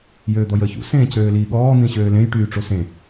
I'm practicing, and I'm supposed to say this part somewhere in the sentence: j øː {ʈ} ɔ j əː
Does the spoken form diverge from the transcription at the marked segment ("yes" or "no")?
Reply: yes